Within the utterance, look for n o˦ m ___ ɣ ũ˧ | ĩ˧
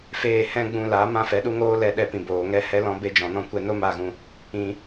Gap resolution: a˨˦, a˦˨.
a˦˨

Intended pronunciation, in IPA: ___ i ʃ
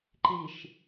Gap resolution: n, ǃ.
ǃ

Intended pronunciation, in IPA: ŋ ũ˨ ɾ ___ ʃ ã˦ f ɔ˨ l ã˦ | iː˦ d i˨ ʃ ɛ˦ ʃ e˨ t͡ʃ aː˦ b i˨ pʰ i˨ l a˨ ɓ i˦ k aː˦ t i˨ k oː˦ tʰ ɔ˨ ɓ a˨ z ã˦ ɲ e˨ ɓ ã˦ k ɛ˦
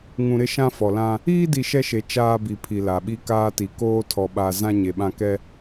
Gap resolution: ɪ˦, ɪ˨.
ɪ˦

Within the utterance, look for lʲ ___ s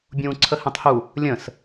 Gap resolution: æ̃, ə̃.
ə̃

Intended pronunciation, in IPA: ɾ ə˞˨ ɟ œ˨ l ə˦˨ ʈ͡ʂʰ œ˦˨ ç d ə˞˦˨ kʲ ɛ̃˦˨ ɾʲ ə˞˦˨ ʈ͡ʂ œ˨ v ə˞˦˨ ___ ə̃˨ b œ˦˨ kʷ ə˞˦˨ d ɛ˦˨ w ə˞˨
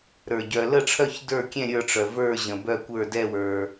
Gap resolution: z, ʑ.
ʑ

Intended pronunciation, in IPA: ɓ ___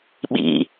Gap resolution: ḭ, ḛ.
ḭ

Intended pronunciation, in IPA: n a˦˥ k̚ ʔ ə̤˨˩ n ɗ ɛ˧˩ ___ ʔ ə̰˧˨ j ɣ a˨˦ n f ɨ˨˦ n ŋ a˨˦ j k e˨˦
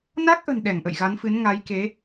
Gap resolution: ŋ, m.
ŋ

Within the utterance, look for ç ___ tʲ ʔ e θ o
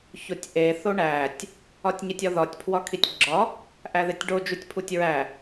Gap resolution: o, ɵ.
o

